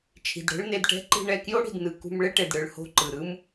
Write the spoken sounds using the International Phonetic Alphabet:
t͡ʃʰ i̤˨ d ɽ ɛ̤˦ ɭ n e˧ d ʈ ɛ̤˦ ǃ i̤˦ ɳ ɛ˧ k j o˦ ɽ i̤˨ d n ɯ˧ k ṳ˧ m ɭ e˦ ʈ e˨ d ɽ ɯ˨ ɭ h o̤˦˨ ǃ ɯ˨ ɾ ɯ˦ m

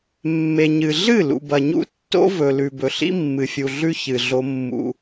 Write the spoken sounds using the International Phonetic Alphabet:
mː e˨ ɲ ɨ˨ ɮ ɨ˦˨ l ṵ˨ b ɐ˨ ɲ ṵ˦ tː o̰˦ v ɵ˨ l ʉ˨ b ɵ˨ ɬ ḭ˦ mː ɨ˨ fʲ u˨ ɮ ʉ˦ ç ɨ˨ ɮ o˦ mː ṵ˦

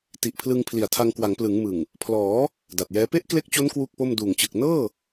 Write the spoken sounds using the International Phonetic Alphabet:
t i˨˩ ʔ pʰ l ɯ˧ ŋ pʰ l i˨˩ a̯ tʰ a˧ ŋ k w a˩˦ ŋ p l ɯ˩˦ ŋ m ɯ˨˩ ŋ | pʰ l ɔː˩˦ | d a˨˩ t̚ j ɛː˦˥ p e˥˩ ʔ k l e˦˥ k̚ t͡ɕ o˦˥ n k w u˥˩ k̚ p o˥˩ m d uː˨˩ ŋ t͡ɕ ɯ˨˩ k̚ n ɤː˥˩

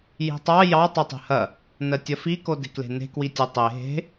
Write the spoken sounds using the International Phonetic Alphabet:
j i̤ tˤ ɑ j ɑ tˤ o tˤ e̤ h ɐ | n ɜ tʲ ɐ f i k o d e̤ k l e̤ n e̤ k w i tʲ e tˤ e ɦ e̤

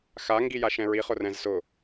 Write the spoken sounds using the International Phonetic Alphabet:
x a ŋ ɡ i j a ʃ ɛ̃ ɹ i χ ʊ r ɛ̃ z s ʊ

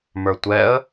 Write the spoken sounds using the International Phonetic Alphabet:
m ə˞ tʷ ɛ ə̯

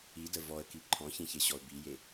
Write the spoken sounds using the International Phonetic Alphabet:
i d ə v ɔ ə̯ k i ǃʰ ɔ̃ ç ĩ ç e ɕ ɔ ʊ̯ b i j e

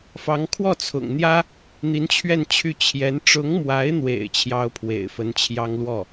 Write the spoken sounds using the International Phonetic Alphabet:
f ɑ˧˥ ŋ kʰ w ɔ˥˩ t͡sʰ ʊ̰˨˩ ŋ n̪ j ä˥ | n̪ i˧˥ n t͡ɕʰ ɥ ɛ˥˧ n t͡ɕʰ y˥˩ t͡ɕʰ j ɛ˧˥ n ʈ͡ʂ ʊ˧˥ ŋ m w a˧˥ ɪ̯ n̪ w ḛ˨˩ ɪ̯ t͡ɕʰ j ɑ˥ ʊ̯ pʰ w ḛ˨˩ ɪ̯ f ə˧˥ n t͡ɕʰ j ɑ˥ ŋ l w ɔ˥˩

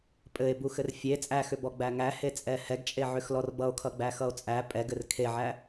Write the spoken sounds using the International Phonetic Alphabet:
pʼ ɘ e̯ b u x ɘ r fʲ e t͡sʼ æ x ʏ b ɔ ɡ͡b æ ŋ æ h e t͡sʼ ɛ h ɛ ɡ t͡ʃʼ e ʕ ʏ x l ɔ r b ʌ o̯ kʰ ʌ ɡ͡b æ x ʌ o̯ t͡sʼ æ pʼ ɛ ɡ ɘ r kʰ e ʕ æ

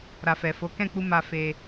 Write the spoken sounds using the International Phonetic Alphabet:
ɾ a˨ f ɛ˨ f o˨˦ k ɛ̃˦˨ k͡p u˧ m a˧ f e˧

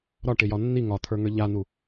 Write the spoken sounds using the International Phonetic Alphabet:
ɾ ɒ ʈ ɪ j ɒ nː i ŋ ɒ t̪ʰ ə˞ ŋ ə˞ ʎ a n̪ u

